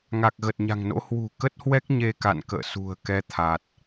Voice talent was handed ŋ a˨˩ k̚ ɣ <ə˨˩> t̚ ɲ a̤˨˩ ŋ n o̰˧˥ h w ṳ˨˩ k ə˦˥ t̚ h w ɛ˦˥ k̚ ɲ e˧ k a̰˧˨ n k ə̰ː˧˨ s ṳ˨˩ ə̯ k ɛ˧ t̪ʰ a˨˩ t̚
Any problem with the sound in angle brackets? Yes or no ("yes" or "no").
no